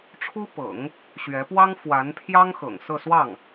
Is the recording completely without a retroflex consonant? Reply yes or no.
no